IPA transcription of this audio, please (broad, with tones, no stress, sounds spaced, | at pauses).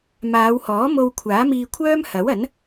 m aː˨˧ w h ɔː˨˥ m o˧ w kʷʰ aː˨˥ m iː˧ kʷʰ œː˥ m h ɐ˨˥ w ɐ˨˥ n